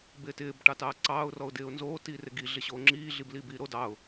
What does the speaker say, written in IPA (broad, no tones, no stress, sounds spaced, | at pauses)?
b ɪː t ɪː b ʈ ɑ t ɑː ǀ ɑː ʊ̯ r ɔ ʊ̯ d ɪː ʊ̯ n z oː t iː r ɪ ɡ i ɮ ɪ ɕ oː ŋ͡ǁ iː ɮ i b l iː b iː ɾ o d ɑ ʊ̯